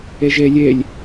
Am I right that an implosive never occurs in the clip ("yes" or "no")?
yes